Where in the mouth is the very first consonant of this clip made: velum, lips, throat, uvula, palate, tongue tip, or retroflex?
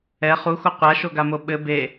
uvula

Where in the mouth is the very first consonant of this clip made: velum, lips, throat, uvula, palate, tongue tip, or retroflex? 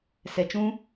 tongue tip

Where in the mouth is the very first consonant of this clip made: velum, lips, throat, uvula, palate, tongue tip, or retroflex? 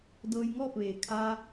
tongue tip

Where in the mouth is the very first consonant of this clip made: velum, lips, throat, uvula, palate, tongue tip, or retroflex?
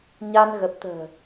palate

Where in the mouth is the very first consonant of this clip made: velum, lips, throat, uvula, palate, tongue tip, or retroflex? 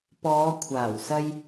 lips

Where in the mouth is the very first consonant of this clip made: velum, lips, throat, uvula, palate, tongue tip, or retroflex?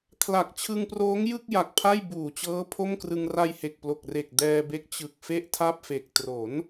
velum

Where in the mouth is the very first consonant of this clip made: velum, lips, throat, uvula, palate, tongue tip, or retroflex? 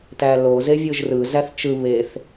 tongue tip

